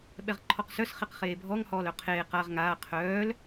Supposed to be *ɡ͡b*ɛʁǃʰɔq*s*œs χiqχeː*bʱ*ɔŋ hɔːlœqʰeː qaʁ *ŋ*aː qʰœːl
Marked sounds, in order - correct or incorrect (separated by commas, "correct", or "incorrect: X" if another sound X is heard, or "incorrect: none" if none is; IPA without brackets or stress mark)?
incorrect: ɓ, correct, correct, correct